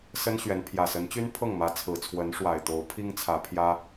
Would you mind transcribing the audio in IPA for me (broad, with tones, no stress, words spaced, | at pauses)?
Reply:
sə˦nɕɥɛ˨˦n pʰjä˨˩sə˨˦nt͡ɕy˦n pʰɤ˥˨ŋmä˨˦ t͡sʰɹ̩˨˩t͡sʰwə˨˦nʂwa˨˩ɪ̯t̪o˨˦ʊ̯ pʰi˦ŋt͡sʰä˨˦pʰjä˦